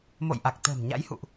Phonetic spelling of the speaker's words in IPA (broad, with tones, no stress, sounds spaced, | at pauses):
m o̰˧˨ j ʔ a˨˩ k̚ t̪ ə̤ː˨˩ m ɲ a̰˧˥ j h ṵ˧˨ ʔ